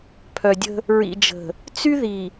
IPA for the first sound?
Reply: pʰ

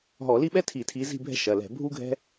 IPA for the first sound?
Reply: ɦ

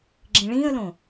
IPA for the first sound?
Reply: ɡ͡ǁ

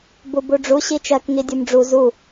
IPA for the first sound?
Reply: b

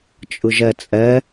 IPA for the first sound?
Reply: t͡ʃʼ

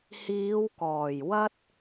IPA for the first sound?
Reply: h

